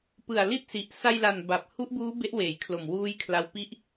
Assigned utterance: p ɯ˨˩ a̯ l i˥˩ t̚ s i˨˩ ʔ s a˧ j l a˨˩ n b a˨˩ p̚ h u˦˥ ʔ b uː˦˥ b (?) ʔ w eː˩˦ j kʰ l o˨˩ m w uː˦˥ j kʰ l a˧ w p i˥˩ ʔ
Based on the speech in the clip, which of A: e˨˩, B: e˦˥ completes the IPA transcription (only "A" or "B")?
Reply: B